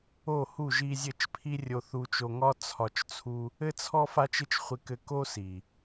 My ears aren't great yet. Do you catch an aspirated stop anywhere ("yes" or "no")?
yes